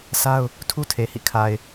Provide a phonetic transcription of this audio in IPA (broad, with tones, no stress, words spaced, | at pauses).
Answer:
sa˦ʊ̯ | tʰu˦tʰe˨hḭ˦˨ kʰa˨ɪ̯